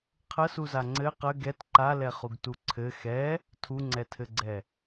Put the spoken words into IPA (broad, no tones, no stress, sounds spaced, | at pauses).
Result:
qʰ ə s u z a ŋ͡ǀ ɘ q ə ɡ ɛ t ǃ a l ɛ χ u ɡ t u ǀʰ ɘ x ɛ | tʰ u ŋ͡ǀ ɛ tʰ ɘ ɡ͡ǀ ɛ